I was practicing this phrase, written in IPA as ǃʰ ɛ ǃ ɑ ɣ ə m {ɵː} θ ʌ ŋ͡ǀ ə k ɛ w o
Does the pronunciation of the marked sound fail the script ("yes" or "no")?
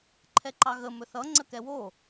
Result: yes